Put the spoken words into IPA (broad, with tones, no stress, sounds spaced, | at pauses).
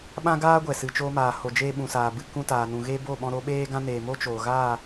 ɓ ã˦ ɡ aː˦ ɡʷ ɛ˨ s ɨ˨ t͡ʃ oː˧ m aː˨ h o˨ d͡ʒ eː˦ ɓ ũ˨ s aː˨ b ɨ˧ k ũ˦ t aː˨ n ũ˨ ɣ e˦ b o˦˨ ɓ ɔ̃˧ ɾ o˧ ɓ eː˦ ɡ ã˦ n eː˨ m o˦ t͡ʃ oː˨ ɣ aː˦˨